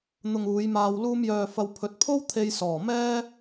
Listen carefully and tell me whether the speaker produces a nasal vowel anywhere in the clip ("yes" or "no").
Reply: no